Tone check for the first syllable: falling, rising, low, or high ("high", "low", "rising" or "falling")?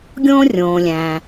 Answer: high